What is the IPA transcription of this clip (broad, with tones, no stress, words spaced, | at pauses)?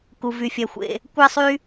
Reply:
ku˧ vy˧fʲɛ˧xʷḛ˧ | kʷɛ˥sˤy˥